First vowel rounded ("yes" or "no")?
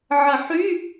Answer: no